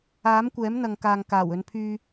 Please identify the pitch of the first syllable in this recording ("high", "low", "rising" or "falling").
rising